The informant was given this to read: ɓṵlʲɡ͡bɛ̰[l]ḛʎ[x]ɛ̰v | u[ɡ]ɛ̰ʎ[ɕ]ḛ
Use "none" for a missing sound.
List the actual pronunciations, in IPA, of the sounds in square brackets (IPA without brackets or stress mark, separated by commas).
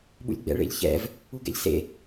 ɭ, ç, ɡ, s